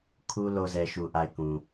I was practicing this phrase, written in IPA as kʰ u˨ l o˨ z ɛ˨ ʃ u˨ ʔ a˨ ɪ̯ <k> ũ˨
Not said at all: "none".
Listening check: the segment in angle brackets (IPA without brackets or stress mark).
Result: k